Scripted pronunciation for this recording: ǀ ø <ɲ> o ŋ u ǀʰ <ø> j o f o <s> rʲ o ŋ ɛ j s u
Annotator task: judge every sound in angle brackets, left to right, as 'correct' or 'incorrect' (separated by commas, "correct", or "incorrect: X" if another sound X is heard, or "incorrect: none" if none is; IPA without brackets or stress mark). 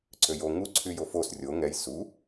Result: incorrect: j, incorrect: y, correct